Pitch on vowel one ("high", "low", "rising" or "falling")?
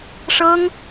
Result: high